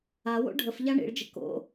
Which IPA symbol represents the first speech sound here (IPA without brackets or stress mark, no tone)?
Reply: a